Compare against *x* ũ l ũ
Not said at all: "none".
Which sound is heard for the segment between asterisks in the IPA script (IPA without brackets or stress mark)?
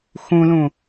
x